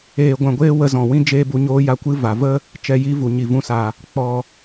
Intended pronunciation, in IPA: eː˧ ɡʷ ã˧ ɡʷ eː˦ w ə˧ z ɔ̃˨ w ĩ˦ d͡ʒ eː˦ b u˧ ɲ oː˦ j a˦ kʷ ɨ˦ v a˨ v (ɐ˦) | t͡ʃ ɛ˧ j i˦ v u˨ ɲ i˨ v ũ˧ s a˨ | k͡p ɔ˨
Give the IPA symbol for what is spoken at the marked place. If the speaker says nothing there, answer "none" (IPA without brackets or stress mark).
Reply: ə˦